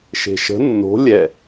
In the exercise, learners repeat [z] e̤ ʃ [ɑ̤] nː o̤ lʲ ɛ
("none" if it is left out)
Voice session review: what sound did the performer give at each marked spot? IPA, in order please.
ʃ, ə̤

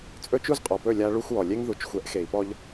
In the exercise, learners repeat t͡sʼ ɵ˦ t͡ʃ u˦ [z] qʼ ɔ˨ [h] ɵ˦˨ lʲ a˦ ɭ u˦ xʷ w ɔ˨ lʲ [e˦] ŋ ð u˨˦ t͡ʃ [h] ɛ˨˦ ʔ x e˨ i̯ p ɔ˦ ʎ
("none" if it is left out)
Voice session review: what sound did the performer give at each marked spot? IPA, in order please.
z, p, e˦, xʷ

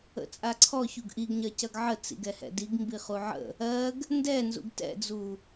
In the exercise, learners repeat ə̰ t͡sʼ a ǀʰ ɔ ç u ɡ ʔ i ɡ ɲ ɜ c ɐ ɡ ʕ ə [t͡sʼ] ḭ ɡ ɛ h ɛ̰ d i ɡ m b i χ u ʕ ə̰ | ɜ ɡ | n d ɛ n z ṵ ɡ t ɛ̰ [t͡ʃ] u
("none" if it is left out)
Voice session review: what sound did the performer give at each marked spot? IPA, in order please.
t͡s, d͡z

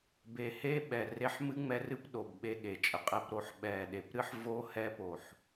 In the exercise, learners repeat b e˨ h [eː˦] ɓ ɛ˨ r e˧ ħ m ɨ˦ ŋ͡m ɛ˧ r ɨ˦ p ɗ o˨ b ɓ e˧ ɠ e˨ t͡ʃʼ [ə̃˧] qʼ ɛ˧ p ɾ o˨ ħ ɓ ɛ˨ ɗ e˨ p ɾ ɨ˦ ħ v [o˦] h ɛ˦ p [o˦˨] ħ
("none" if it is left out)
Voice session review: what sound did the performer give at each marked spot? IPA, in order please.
e˦, ə˧, o˦, o˨

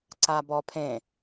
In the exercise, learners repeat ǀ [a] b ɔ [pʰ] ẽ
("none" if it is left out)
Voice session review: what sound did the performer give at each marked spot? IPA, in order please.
a, pʰ

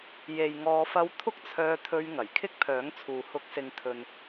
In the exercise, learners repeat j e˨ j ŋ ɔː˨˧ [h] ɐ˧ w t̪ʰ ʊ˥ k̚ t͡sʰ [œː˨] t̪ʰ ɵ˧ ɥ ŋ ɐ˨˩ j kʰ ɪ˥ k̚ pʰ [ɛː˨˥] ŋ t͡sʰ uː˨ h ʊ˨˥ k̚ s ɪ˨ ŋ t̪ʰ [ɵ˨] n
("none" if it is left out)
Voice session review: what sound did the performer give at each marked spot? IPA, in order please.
f, œː˧, œː˨˥, ɵ˨

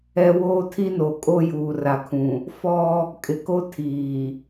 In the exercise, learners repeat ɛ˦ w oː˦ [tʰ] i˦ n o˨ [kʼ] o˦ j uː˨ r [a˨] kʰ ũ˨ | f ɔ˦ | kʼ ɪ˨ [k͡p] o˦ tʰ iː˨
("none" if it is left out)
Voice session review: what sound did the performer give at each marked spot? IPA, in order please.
tʰ, kʼ, a˨, k

